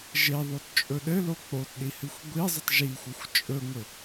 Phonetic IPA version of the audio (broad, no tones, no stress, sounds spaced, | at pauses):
ʒ e ðˤ o t t͡ʃʼ ɵ ɗ ɘ l o k͡p o t ɗ i h ɨ xʷ ɡʷ i zˤ ɨ tˤ ʒ i xʷ ɘ xʷ t͡ʃʼ ɵ ŋʷ ɘ